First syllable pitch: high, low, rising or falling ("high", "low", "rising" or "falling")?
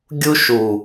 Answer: high